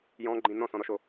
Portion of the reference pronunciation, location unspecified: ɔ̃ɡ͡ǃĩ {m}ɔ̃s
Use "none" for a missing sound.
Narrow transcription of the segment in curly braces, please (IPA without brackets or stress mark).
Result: n